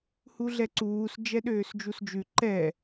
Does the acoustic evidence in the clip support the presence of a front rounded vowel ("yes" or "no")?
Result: yes